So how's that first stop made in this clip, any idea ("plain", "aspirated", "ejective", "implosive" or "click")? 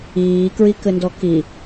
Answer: plain